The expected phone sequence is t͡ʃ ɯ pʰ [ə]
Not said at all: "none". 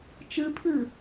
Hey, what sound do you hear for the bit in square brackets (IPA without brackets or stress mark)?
ɯ